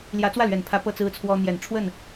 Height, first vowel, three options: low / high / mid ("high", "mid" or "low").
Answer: low